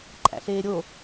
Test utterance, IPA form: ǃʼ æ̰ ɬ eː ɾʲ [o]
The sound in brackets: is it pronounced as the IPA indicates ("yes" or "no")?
yes